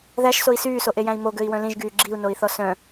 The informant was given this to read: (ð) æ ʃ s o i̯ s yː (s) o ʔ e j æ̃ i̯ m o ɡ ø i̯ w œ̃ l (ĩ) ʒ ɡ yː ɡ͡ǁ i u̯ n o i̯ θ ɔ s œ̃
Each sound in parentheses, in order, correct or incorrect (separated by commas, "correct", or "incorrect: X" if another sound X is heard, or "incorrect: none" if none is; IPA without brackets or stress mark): correct, correct, correct